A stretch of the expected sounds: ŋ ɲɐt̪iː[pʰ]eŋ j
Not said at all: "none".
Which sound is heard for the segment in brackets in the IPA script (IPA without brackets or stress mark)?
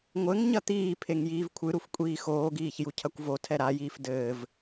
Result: pʰ